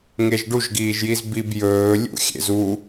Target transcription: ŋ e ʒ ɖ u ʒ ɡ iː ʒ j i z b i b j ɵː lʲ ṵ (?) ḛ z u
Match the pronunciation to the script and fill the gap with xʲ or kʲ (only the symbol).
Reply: xʲ